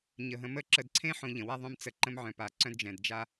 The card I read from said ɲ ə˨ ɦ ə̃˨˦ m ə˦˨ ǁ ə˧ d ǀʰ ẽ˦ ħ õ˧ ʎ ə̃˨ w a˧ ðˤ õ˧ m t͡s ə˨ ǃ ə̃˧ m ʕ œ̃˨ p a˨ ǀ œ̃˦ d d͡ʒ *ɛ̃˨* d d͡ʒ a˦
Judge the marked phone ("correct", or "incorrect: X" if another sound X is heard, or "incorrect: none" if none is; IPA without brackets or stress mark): correct